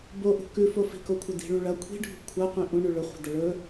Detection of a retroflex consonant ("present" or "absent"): present